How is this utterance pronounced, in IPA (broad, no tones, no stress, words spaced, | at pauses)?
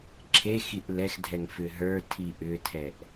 ǁʰexiʔ lɛxdʱɛŋ fʏɦə˞tʰi ʔʏtʰɛʔ